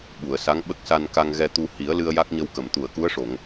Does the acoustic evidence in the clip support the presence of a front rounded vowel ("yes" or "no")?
no